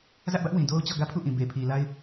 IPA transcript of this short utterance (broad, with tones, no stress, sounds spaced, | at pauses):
z ä˦ ʔ b ä˦ ʔ w ĩ˨ d o˦ ʊ̯ t͡ɕ ɔ˦˨ ɡ ä˦ pʰ u˦˨ ʔ ĩ˨ b e˨ pʰ i˨ l a˦ ɪ̯